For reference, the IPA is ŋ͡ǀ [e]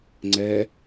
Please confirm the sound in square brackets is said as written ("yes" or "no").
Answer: no